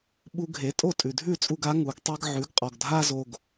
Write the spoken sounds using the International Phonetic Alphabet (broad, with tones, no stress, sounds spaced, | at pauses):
ɓ u˧ ɡʱ e˩˥ tʼ o˥˩ tʼ ʉ˩ dʱ ʉ˥˩ t͡sʼ u˧ ɡ a˩˥ ŋ u˩˥ ɡ tˤ ɛ˥ ɡ ʕ ʉ˩˥ ɡ qʼ ɔ˩ ɡ dʱ a˥ z o˧ ɡ